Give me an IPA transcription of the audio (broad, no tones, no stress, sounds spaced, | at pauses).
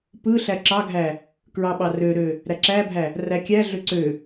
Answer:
p ɯ ɬ æ ǁ ɑ ɡʱ æ | k ɹ ɑ ɓ ɑ r ø ɾ ø | ɾ æ ǁ æ bʱ æ | r æ kʲ æ ɮ ø ǀ ø